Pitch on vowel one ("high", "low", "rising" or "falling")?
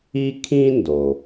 high